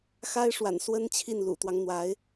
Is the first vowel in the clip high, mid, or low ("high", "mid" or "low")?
low